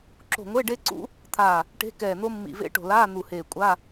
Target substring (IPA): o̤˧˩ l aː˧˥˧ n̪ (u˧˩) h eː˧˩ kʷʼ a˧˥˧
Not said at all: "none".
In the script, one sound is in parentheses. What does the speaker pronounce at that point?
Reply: u˧˩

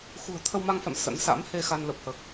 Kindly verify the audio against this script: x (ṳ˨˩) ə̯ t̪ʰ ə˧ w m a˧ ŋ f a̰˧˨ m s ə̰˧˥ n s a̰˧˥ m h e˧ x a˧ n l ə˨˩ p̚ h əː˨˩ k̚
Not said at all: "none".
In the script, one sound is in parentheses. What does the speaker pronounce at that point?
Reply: ṳ˨˩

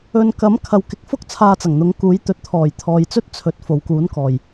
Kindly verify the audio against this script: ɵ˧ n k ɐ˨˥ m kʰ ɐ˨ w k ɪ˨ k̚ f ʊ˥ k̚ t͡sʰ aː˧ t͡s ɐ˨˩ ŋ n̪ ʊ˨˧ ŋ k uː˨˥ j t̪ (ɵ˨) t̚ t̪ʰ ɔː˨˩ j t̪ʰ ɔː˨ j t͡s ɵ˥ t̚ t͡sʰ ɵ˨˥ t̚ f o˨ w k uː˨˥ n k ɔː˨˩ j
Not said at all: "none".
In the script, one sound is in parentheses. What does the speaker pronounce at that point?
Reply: ɵ˨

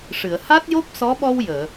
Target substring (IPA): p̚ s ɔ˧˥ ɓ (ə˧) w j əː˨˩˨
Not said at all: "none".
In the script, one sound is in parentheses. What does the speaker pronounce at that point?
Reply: ɔ˧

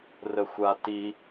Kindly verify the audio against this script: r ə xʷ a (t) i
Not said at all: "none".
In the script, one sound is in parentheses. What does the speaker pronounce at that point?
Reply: t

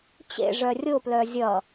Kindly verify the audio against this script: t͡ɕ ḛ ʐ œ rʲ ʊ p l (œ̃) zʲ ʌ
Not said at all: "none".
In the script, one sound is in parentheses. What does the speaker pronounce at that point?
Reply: œ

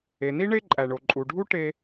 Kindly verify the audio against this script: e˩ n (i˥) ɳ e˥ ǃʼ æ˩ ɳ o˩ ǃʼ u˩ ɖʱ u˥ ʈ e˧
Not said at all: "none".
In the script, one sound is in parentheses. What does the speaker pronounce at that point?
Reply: i˥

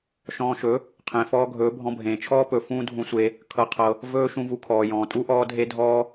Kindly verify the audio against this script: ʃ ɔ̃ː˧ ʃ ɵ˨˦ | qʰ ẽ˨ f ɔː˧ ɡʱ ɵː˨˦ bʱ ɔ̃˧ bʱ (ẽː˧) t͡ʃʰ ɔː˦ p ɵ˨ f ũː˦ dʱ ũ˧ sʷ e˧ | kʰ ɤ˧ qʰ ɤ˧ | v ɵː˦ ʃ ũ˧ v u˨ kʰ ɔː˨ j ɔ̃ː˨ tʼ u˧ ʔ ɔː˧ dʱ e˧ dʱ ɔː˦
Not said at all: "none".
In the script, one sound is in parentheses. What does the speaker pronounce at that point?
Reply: ẽː˨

